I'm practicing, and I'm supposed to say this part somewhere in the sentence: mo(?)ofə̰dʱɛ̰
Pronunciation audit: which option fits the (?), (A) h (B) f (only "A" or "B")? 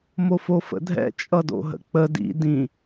B